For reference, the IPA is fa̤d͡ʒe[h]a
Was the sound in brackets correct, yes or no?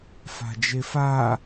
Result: no